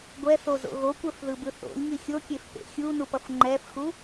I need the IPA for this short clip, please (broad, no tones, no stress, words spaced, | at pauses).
ɡʷɛθozo̰ ɣokʷɛfðɯbɯ θo̰lʲŋi xʲokʲef pḛ xʲunupʌf ŋ͡ǃɛfxu